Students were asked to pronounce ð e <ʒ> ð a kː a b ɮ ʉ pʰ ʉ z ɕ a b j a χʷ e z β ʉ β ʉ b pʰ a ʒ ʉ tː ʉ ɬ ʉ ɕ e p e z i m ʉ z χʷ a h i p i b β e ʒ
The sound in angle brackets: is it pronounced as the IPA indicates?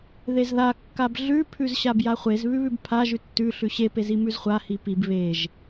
no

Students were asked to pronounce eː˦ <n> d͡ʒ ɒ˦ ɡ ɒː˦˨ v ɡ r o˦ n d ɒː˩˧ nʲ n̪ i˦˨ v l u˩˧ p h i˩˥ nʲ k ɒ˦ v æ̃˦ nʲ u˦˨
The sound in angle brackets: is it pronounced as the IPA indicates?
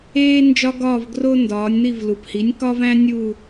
yes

